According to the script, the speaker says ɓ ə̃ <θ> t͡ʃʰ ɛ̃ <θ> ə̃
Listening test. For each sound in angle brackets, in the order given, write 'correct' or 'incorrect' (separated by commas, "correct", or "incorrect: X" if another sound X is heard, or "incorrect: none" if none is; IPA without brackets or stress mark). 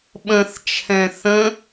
correct, correct